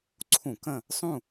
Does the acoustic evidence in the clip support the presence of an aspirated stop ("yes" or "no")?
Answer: yes